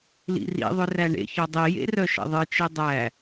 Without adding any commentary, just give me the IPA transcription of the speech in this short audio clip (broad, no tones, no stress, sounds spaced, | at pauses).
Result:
l ḭ r ḭ ðˤ ʏ r æ ɳ ḛ ç œ dˤ i j ḛ r œ ʃ ḛ ðˤ ɨ t͡ʃ i dˤ æ